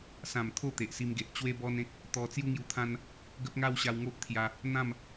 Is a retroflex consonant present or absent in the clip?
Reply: absent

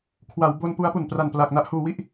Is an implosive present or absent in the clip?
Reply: absent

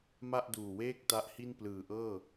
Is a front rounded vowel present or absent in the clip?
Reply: absent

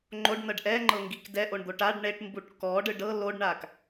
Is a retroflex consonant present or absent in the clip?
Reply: present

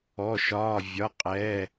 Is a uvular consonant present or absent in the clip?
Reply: present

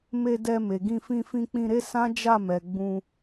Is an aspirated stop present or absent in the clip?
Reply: absent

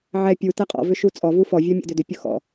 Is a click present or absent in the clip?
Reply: absent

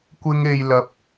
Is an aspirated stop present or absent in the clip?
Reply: absent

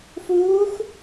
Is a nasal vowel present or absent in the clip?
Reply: absent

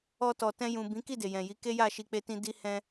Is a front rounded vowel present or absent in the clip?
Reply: absent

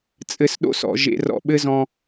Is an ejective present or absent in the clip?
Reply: present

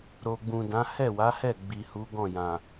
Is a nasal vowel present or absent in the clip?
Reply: present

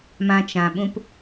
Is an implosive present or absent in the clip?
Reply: present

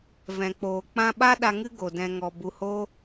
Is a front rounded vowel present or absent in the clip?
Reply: absent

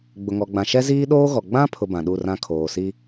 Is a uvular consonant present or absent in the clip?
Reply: absent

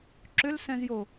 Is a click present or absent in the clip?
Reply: present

